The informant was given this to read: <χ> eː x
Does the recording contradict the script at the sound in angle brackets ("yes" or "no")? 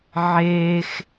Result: yes